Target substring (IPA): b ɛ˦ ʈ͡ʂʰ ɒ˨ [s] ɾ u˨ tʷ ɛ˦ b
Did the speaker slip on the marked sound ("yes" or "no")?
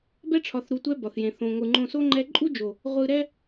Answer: yes